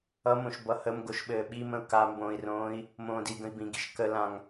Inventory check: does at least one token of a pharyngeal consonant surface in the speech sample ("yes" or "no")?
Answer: no